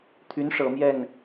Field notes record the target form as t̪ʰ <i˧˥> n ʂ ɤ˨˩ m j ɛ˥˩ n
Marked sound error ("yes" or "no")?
yes